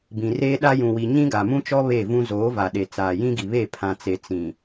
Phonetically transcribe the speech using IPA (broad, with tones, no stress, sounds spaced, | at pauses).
b ĩ˨ r eː˦ ɗ a˦ j ũ˨ w i˨ ɲ ĩ˦ ɡ a˨ m ũ˦ t͡ʃ ɔ˦ β e˦˨ v ũ˦ z oː˨˦ v a˨ ɗ e˨ t͡s aː˨ j ĩ˦ ɡ i˨ β e˦˨ pʰ ã˨ t͡s e˨ t͡s ĩ˨